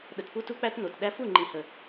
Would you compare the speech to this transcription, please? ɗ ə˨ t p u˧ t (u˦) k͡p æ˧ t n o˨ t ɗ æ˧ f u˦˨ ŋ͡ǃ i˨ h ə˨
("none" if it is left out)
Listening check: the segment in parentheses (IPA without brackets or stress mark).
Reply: u˧